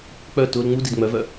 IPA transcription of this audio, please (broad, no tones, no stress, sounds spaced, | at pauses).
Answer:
k͡p œ t ʊ l ŋ͡m u d i d ŋ͡m œ v œ